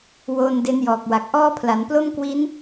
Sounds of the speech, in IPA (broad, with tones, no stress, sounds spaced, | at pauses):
w oː˧ n d e˦˥ n j ɔː˨˩ k̚ w a˨˩ k̚ ʔ ɔː˥˩ pʰ l a˩˦ n p l o˥˩ m k w i˦˥ n